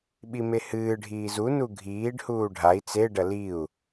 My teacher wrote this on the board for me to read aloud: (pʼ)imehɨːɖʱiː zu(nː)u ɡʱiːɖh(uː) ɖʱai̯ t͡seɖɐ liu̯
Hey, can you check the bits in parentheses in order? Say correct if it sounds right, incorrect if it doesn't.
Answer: incorrect: ɓ, incorrect: n, correct

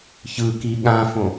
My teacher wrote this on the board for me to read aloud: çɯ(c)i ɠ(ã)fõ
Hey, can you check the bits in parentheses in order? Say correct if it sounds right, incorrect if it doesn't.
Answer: incorrect: k, correct

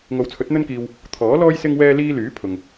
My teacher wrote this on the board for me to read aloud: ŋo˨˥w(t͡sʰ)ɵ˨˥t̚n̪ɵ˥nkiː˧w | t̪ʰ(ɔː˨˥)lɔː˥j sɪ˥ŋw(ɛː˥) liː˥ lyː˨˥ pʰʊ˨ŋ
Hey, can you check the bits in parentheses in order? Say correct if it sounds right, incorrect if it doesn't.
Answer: correct, correct, correct

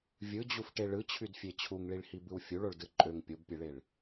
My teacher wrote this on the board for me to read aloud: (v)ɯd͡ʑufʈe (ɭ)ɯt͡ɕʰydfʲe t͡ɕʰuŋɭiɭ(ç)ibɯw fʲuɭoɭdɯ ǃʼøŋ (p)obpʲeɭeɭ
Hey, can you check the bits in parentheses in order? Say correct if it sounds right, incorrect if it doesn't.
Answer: incorrect: vʲ, correct, incorrect: h, incorrect: pʲ

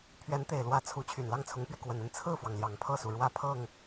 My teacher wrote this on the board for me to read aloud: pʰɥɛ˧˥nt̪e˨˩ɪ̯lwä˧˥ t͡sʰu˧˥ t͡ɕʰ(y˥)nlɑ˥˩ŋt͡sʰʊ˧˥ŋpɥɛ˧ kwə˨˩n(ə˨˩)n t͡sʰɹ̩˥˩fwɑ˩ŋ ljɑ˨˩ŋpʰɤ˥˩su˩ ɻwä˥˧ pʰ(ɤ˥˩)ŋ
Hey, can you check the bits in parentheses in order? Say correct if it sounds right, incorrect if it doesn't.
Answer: incorrect: y˨˩, incorrect: ə˥˧, correct

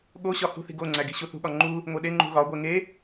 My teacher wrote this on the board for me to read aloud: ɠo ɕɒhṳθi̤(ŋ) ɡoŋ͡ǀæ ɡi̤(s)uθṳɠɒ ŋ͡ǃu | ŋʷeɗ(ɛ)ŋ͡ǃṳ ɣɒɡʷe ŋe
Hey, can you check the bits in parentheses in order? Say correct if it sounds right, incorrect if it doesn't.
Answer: incorrect: none, incorrect: ɕ, incorrect: e

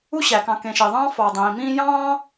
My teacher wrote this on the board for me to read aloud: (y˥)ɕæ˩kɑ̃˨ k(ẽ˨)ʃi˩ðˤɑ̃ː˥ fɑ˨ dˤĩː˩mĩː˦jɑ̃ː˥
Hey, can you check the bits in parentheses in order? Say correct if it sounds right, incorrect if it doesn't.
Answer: incorrect: u˥, correct

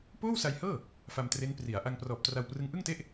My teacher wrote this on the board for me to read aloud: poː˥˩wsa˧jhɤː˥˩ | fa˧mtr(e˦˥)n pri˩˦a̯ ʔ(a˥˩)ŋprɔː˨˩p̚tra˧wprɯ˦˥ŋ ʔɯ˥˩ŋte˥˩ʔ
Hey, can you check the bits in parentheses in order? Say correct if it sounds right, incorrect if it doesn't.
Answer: correct, incorrect: a˧

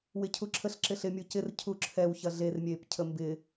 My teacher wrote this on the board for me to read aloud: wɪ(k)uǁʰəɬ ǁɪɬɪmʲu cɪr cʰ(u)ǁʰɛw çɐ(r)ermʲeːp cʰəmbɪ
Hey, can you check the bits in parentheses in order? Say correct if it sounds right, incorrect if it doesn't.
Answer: incorrect: cʰ, correct, incorrect: ɮ

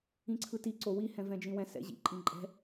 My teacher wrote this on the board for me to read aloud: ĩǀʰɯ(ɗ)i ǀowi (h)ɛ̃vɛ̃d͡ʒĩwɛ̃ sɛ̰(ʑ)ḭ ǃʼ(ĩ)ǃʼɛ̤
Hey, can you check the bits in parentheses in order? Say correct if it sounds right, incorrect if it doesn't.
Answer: incorrect: t, correct, correct, correct

